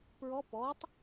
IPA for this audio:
pɹɔ pɔtˤ

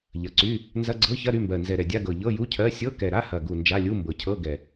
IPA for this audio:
ʎɐ˨˩ǀy˧˥˧ | nzɐ˧˥˧ɡ͡ǀɤ˧˥˧çɐ˧˥˧ ɾy˧˥˧mbɜ˨˩ nzɛ˨˩ɾɛ˨˩dʲa˧˥˧ɡɤ˨˩ ʎɤ˧˥˧ju˧˥˧cʰɜ˧˥˧ sʲɤ˧˥˧kɛ˨˩ ɾa˧˥˧hɐ˨˩ɡu˨˩ nd͡ʒa˧˥˧ lʲu˧˥˧mbɤ˨˩cʰɤ˧˥˧ ɡɛ˨˩

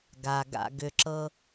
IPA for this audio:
ɡa˨ɡa̰˧ ɡʏ˨ǁɤ˧

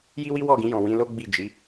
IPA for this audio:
ji˦wi˦wɔ˦˨ɡĩ˧ jɔ̃˨wĩ˧lo˦ ɡ͡bi˦˨d͡ʒi˨˦

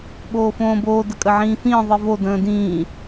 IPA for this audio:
ɓoːfõːboː dəkʼəʕĩːfĩː ðˤivo də̃ːdĩː

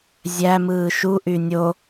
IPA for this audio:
zʲæmɯː ʃuʔy nʲo

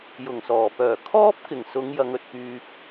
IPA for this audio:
jʊ˨˩ŋsɔː˨˩pœː˨˩ kʰɔː˥p̚kɪ˨˩ŋ sʊ˨˧ŋ jɐ˨˧ŋɵ˨t̚kyː˧p̚

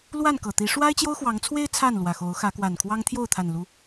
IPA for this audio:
lwa˥˨nkɤ˨˩t̪i˨˦ ʂwa˦ɪ̯t͡ɕjo˦ʊ̯xwɑ˨˦ŋt͡sʰwe˦ɪ̯ t͡sʰa˥˨nlwä˨˩xo˨˦ʊ̯ xä˨˦kwa˨˩nkʰwɑ˦ŋ t̪ʰjo˥˨ʊ̯t̪ʰa˨˩nlu˨˦

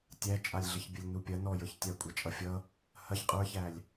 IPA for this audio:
tʲæt͡ʃʼalʲɮəç bʲəlʲnupʲɐ nɔjə˞ç tʲakʷʼat͡ʃʼʌfʲʌ | hɐç qʼə˞çælʲ

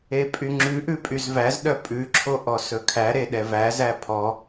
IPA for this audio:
epʼyŋ͡ǁʉʔʉ pʼyzvæzɗœ pʼʉǁʰo ʔɔsɵkʰæɾe ɗɛvæzæ pʰɔ

